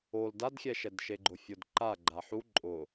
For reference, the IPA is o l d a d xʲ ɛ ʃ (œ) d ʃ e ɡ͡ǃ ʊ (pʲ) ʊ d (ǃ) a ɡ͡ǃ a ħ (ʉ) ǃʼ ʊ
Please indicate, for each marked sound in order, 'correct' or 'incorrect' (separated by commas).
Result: incorrect, incorrect, correct, incorrect